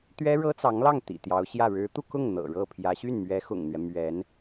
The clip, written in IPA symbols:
t̪ ɥ ɛ˥ ɻ ɤ˥ t͡s ɑ˧˥ ŋ l ɑ˥˩ ŋ t̪ ḭ˨˩ t̪ j ɑ˧˥ ʊ̯ ɕ j ä˥˩ ɻ ɻ̩˧˥ t̪ u˧ k ʊ˥˩ ŋ n̪ ɤ̰˨˩ ɻ ɤ˥˩ pʰ j ä˧˥ ɕ y˥˩ n m ɥ ɛ˧˥ x ʊ̰˨˩ ŋ n̪ ɥ ɛ˦ m ɥ ɛ˧˥ n

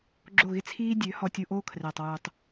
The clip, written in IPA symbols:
ɡ͡ǁ o˦˨ ɣ ɪ˦ t͡sʰ iː˦ dʲ ø˨˦ h ɔ˧ tʲ u˧ ʔ oː˦ kʰ r ɛː˨ tˤ w uː˨ tˤ

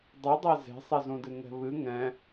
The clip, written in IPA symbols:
dˤ ɨ dˤ e z e̤ sˤ e z ũ d ɨ ŋ ɛ̤ β ɨ ŋ ɛ̃

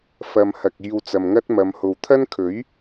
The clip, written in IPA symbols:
f ɐ˨ m h ɐ˨ k̚ iː˧ w t͡s ɐ˨ m ŋ ɐ˥ t̚ m ɐ˨˧ m h o˨ w t̪ʰ ɐ˥ n kʰ ɵ˨˥ ɥ

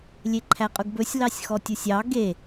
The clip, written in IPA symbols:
lʲ e ǃʰ æ qʼ ɵ ɡ b ɵ sʲ l ɑ sʲ x ɔ tʲ u sʲ ɑ ɡ e

